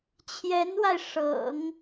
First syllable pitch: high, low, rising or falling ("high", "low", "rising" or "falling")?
rising